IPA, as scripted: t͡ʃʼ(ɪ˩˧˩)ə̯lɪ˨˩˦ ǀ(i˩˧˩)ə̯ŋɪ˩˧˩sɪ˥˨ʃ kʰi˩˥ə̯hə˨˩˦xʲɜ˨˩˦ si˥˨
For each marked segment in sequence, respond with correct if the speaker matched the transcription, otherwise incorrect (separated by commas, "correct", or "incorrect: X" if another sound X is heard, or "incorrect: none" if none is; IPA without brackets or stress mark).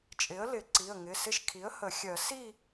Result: incorrect: ɪ˩˥, correct